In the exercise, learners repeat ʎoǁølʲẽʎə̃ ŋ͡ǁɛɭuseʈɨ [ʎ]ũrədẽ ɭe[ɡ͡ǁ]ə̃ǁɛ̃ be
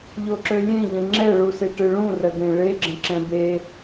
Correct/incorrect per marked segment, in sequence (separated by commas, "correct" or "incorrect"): incorrect, correct